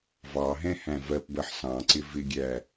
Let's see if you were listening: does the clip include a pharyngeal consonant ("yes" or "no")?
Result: yes